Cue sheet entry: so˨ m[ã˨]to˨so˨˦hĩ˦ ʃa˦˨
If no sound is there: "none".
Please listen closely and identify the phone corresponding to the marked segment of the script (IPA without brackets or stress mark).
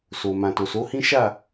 ã˨